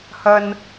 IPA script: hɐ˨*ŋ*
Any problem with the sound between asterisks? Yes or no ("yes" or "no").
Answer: yes